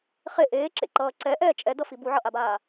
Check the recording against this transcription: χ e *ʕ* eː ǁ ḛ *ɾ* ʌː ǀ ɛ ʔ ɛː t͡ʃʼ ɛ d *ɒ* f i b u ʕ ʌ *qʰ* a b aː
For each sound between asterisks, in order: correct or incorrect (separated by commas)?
incorrect, incorrect, incorrect, incorrect